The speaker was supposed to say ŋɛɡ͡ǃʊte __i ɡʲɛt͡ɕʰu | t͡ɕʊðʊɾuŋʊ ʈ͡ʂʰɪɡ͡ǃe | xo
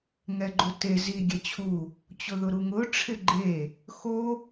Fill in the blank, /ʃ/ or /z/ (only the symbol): z